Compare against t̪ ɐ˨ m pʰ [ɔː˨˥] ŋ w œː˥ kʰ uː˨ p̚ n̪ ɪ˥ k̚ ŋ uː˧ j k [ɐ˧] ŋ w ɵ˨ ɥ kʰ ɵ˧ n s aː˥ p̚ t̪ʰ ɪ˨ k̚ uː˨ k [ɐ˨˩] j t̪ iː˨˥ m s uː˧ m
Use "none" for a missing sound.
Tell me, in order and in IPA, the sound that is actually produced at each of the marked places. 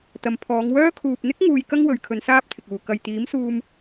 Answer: ɔː˨˧, ɐ˥, ɐ˨

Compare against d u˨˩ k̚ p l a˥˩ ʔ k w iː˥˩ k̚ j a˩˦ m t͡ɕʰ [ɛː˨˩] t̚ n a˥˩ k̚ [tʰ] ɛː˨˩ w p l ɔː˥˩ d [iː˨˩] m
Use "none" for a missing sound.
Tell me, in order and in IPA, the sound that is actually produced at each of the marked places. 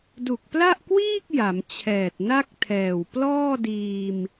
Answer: ɛː˨˩, tʰ, iː˧

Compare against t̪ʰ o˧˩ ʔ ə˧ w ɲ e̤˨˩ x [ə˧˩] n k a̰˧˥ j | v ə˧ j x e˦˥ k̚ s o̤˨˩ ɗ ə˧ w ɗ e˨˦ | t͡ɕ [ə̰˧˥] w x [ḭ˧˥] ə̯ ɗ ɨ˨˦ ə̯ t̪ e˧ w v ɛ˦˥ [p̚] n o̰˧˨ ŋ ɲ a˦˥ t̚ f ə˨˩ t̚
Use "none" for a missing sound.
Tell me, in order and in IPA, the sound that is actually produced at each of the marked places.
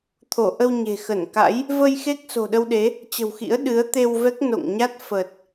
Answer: ə˧˩, ə̤˨˩, ḭ˧˥, k̚

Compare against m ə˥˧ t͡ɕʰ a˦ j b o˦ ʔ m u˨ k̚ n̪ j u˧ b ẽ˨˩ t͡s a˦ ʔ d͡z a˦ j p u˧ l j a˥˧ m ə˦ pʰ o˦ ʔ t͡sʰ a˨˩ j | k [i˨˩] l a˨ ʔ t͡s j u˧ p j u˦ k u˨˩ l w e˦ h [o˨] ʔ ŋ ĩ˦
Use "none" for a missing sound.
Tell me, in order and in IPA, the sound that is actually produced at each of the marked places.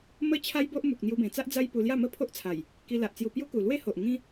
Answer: i˧, o˨

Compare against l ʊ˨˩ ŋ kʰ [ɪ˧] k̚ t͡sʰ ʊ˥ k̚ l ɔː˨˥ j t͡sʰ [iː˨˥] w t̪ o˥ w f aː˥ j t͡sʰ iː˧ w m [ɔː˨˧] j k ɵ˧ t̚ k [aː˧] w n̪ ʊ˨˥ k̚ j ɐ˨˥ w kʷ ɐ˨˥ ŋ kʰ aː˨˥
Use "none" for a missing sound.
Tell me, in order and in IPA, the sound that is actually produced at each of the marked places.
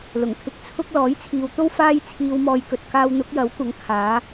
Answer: ɪ˧, iː˨, ɔː˧, aː˧

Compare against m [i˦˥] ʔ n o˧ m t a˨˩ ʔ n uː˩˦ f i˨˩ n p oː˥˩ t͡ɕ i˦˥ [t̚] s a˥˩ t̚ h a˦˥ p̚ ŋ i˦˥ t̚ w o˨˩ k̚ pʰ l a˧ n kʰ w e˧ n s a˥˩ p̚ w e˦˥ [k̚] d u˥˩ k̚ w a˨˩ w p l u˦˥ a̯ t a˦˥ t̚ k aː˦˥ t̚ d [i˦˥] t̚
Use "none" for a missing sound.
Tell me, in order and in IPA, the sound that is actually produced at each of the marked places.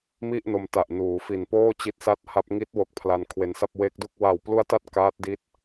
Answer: i˥˩, t̚, k̚, i˦˥

